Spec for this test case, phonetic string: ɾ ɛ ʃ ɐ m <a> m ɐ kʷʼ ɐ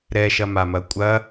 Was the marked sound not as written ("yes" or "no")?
no